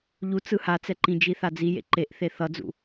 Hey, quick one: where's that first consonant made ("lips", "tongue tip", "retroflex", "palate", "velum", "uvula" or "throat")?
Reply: palate